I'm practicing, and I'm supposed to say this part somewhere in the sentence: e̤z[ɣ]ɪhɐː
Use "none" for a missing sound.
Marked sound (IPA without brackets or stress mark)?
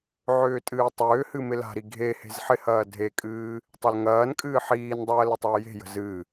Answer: ħ